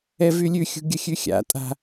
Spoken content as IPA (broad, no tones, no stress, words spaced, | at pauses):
ɛvylʲʉ xʲṳɡʲəxʲʉxʲa̰ tʼa̤